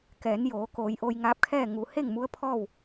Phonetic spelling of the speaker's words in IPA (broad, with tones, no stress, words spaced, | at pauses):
kɛː˩˧njoː˩˧ koː˩˧jʔo˧jŋaː˧˥p̚kʰɛː˥˨ ŋu˩he˥˨ŋ mu˧˥ə̯pʰɔː˥˨w